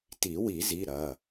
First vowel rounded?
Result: no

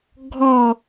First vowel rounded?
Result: yes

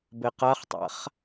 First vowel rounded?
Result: no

